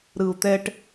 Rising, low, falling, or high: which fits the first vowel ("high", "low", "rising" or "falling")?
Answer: low